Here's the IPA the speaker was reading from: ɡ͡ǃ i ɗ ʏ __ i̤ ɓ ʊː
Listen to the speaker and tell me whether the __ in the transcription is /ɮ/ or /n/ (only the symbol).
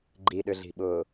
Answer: ɮ